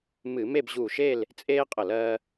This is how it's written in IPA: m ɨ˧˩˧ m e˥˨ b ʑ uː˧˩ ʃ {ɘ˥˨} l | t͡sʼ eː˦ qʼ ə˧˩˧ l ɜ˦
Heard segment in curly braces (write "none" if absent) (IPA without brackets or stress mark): e˥˨